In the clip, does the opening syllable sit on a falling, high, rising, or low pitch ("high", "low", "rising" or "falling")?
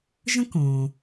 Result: high